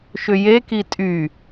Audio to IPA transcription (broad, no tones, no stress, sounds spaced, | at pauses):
ʃ ʏ j e k i tʼ y